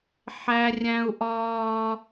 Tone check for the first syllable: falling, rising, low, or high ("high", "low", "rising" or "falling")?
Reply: high